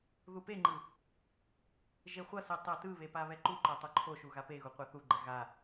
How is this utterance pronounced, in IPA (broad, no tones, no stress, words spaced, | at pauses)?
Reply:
ðupeŋ͡ǃɯ | ʒeχʷʌsi tˤɛtɯβe paβɛǃuǃo tˤoǃʰoʃu ɣapeɣu qʷaθuɡ͡ǃɛ ɣa